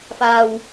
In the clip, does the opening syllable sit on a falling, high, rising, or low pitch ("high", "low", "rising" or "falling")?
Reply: low